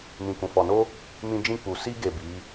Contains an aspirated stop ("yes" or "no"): no